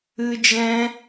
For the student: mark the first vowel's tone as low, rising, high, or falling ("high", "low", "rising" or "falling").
high